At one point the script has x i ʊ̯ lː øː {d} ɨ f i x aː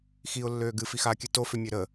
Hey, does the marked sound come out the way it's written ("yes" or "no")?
no